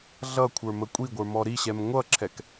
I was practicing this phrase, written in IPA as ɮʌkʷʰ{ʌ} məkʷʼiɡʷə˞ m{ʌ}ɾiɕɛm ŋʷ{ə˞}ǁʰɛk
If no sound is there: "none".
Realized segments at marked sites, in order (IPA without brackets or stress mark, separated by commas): ə˞, ɔ, ʌ